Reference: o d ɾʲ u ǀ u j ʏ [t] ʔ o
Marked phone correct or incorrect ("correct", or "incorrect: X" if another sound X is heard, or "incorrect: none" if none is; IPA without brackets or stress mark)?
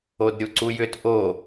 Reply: correct